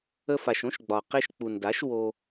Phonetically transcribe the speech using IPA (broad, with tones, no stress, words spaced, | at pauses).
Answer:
ə˧fa˨ʃõ˦ʃɡ͡bɒ˨ qe˧ʃk͡pu˨nda˨˦ʃ wo˧